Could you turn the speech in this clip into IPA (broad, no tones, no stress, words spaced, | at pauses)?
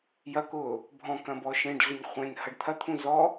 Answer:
jɐkʊː | bʱɔ̃kɐ̃bɔ ʃẽɖɮʏɲ χʷẽnhɐɖ t̪ʰɐt̪ʰũ zɔ